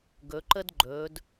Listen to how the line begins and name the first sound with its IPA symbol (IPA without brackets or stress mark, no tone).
ɡ